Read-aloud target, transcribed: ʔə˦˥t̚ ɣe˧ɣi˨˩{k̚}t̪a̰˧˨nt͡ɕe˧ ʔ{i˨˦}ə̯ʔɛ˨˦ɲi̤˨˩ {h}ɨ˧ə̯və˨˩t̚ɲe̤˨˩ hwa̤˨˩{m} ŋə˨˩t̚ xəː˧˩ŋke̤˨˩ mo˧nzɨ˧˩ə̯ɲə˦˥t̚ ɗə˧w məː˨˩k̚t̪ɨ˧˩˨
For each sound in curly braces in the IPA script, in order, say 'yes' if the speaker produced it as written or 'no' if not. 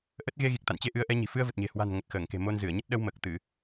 yes, no, no, no

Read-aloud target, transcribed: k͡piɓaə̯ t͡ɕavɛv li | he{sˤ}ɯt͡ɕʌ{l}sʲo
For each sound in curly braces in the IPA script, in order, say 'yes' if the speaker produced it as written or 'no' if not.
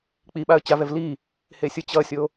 no, no

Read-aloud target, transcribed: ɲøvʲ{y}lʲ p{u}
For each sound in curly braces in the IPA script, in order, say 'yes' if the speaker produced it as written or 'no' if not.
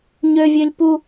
no, yes

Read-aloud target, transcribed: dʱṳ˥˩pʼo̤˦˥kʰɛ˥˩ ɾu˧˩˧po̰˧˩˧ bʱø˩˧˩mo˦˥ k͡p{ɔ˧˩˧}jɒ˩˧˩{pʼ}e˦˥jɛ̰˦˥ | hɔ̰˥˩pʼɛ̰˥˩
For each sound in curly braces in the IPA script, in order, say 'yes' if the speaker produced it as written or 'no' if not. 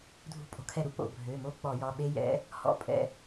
yes, no

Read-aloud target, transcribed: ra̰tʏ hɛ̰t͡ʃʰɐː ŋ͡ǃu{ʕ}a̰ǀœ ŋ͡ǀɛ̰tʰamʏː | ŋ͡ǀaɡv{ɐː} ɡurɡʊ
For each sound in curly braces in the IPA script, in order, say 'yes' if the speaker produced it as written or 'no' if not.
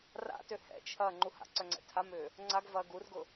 no, yes

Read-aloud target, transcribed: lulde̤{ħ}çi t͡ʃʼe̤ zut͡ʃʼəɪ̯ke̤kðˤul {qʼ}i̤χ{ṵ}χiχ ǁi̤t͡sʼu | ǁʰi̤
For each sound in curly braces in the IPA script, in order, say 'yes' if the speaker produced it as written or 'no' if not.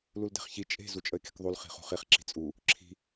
no, no, no

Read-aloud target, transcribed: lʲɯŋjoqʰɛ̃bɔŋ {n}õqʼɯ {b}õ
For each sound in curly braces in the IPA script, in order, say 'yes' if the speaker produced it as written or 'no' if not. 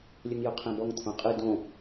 no, no

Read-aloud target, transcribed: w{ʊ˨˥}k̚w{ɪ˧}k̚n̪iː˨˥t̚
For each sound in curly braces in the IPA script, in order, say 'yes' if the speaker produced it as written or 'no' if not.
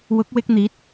yes, yes

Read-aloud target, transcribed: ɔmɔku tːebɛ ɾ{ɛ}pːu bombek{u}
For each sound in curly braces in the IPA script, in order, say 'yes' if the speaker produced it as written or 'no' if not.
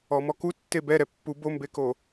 yes, no

